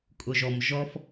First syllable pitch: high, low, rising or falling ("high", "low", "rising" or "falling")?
low